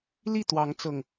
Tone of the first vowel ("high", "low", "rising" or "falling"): falling